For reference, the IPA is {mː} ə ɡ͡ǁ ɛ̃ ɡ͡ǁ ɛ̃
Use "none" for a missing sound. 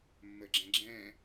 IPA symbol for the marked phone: mː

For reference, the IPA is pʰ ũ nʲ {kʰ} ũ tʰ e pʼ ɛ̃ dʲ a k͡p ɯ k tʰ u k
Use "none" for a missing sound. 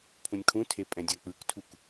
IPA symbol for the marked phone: kʰ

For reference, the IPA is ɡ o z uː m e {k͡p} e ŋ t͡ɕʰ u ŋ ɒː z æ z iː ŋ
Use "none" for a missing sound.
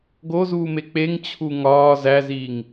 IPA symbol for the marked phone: k͡p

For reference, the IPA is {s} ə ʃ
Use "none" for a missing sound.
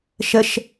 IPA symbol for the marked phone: ʃ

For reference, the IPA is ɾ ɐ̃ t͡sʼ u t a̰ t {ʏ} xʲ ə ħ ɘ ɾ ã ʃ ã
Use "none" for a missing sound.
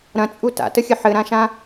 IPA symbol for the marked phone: ə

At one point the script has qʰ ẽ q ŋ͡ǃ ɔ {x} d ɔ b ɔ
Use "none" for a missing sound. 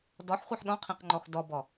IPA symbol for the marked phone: x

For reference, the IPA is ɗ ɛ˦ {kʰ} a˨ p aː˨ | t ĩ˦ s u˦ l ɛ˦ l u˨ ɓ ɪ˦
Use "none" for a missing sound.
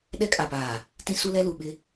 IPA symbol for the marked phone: kʼ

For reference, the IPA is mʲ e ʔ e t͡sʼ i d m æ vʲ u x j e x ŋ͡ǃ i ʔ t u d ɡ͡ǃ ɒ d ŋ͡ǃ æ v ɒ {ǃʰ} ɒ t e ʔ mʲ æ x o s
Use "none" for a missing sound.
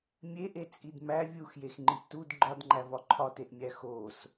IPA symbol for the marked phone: ǃʰ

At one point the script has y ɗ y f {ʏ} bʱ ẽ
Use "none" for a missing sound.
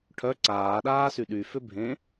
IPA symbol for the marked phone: ʏ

